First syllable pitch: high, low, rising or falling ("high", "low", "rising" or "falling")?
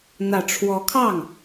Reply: low